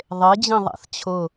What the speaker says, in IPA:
ðˤ e d͡ʑ ĩ ðˤ a̰ θ t͡ɕʰ ʊ

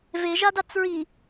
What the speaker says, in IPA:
v e ʒ a d a t͡s ɹ i

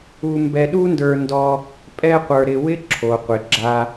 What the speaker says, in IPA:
u˦ m b ɛ˦ ɗ u˦ n d ə˞˧ n d ɔ˧ | pʼ ɛ˦ qʷ ə˞˧ ɾ ɪ˧ w ɪ˦ ǁʰ o˨ qʷ ɪ˨ ɡ͡ǁ a˧

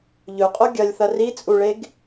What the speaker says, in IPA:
ʎ ɵ qʼ o ɡʲ ɐ lʲ θ ɐ r i t͡sʼ u ɭ e ɡ

